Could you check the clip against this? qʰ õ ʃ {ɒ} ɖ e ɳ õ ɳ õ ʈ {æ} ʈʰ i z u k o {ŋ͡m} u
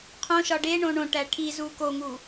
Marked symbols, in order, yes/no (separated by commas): yes, yes, no